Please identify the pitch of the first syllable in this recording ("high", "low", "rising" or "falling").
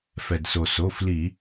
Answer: low